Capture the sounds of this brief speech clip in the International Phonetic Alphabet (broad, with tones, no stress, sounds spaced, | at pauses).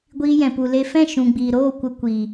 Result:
ɡʷ iː˧ j ɛ̃˨ p u˨ l e˧ f ɛ̃˦˨ ʃ ũ˨ ɡ͡b iː˨ ɾ oː˦˨ kʷ ə˧ kʷ iː˨